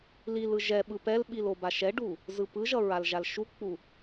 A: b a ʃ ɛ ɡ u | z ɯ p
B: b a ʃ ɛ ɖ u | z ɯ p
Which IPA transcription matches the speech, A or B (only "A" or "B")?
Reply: B